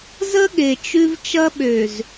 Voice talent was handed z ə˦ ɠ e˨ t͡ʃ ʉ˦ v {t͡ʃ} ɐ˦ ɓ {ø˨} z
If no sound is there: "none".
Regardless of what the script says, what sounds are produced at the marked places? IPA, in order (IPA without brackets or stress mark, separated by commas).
t͡ʃ, ø˨